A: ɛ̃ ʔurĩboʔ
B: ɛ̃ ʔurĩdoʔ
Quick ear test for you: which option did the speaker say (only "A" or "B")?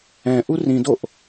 B